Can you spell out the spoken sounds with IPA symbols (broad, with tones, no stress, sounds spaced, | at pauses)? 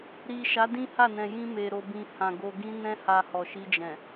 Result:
ɾ i˨ ʃ a˨˦ d ĩ˦ h a˦˨ n ɛ̃˨ j ĩ˧ m e˨ ɾ o˨ b ĩ˨ h ã˨ ɡ o˨ ɡ ĩ˧ n ɛ̃˧ h a˨ h ɔ˨ ʃ i˧ d͡ʒ ɛ̃˨